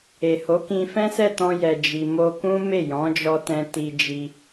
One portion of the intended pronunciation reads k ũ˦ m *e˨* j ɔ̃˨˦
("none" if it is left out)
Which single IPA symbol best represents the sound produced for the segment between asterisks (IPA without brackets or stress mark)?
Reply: e˦˨